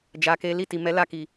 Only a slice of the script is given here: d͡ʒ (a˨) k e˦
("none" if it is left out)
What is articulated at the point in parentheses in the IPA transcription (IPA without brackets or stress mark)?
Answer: a˧